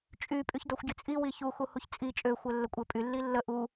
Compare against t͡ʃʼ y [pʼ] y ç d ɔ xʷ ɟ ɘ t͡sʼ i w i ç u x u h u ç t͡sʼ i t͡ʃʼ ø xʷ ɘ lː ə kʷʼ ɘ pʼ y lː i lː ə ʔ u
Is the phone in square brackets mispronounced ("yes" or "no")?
no